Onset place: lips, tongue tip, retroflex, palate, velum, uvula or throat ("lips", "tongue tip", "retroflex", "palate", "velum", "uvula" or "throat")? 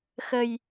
velum